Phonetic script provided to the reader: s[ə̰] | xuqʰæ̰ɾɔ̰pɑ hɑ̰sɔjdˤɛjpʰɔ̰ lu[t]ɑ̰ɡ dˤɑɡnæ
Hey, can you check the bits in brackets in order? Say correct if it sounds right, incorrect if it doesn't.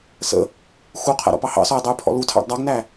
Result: correct, incorrect

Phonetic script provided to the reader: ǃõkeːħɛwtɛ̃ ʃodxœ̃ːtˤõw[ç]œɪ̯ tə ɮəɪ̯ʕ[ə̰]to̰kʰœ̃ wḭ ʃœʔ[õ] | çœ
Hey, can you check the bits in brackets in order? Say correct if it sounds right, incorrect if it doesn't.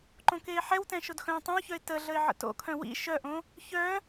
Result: correct, correct, correct

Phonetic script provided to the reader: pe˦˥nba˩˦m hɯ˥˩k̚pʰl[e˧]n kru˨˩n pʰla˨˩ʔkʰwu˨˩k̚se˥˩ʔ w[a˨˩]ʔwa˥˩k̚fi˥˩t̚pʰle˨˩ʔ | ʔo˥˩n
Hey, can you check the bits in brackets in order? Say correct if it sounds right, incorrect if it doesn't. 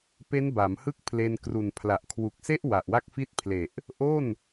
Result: correct, correct

